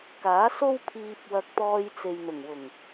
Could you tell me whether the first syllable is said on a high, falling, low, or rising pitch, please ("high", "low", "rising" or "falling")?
rising